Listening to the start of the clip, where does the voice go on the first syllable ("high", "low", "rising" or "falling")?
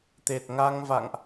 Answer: low